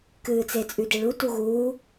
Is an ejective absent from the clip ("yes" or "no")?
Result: no